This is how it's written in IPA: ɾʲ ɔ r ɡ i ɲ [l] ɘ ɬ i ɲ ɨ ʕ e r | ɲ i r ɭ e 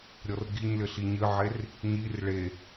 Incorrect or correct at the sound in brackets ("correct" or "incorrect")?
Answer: correct